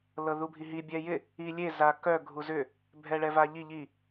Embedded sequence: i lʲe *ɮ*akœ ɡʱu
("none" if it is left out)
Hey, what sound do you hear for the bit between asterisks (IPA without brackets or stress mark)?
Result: z